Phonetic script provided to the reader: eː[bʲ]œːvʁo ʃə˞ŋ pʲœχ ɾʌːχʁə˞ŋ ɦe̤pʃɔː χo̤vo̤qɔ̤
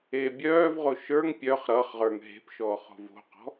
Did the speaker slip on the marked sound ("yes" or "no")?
no